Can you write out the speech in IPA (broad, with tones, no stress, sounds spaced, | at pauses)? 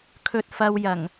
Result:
kʰ ɵ˧ t̚ f ɐ˧ w j ɐ˨˩ ŋ